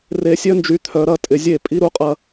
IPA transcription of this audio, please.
r e˧ sʲ œ˦ n d͡ʒ y˧ t̪ʰ œ˧ ɾ ɐ˦ tʼ ɪ˧ zʲ e˦˨ pʼ i˦ ɾ u˦ qʼ ɐ˦

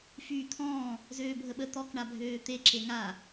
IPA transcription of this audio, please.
f yː t̪ʰ ɔ̃ː | z øː bʱ ə ɓ ə t̪ ɔ k ɳ a bʱ øː t̪ e ǁ e ŋ a

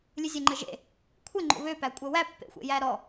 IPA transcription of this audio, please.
lʲ ɨ zʲ ɛ ŋ͡ǃ ɘ ʒ ḛ | kʷʰ ɘ ŋ͡ǃ o̰ β ø p æ kʷʼ ə w æ pː ḛ xʷ ḛ j æ ɾ ɔ

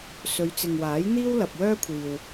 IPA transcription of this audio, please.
s ɵ˨˧ ɥ t͡s ɪ˨ ŋ w aː˨˥ j n̪ iː˥ w l ɐ˨ p̚ w œː˥ kʷʰ iː˨ w

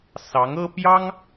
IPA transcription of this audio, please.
s ɑ˧˥ ŋ ɤ˥ p j ɑ˥ ŋ

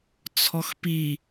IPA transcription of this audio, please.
t͡sʰ ɔ x p i

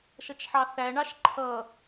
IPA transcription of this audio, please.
ʃ ʌ t͡ʃ ħ ɑ θ æ ɳ ɑ ʃ ǃʰ ʌ

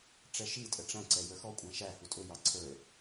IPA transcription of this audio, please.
ʈ͡ʂ ɛ ʃ i tʼ ə ʈ͡ʂ æ̃ ǀ ɛ j ə˞ x ɔ kʷʼ æ̃ ʃ æ h u tʼ ʊ j ɑ ǀʰ ə˞

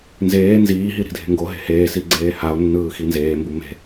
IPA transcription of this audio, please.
n z eː n z iː ɦ i ɾ i̤ dʱ e̤ ŋ ɡ o ɦ e̤ h eː s i ɡ͡ǀ eː h a o̯ nː ɯː x i n z eː m b u m e̤

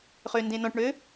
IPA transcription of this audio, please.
χ ø n d ẽ n ɔ̃ ʈ ɳ ø

